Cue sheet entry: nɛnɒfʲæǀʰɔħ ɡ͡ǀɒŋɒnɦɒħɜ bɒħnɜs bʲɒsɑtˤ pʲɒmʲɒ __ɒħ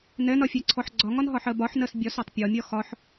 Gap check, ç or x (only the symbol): x